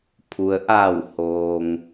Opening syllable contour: low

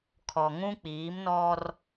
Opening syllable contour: low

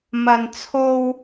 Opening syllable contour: low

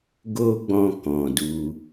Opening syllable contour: high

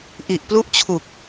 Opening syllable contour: low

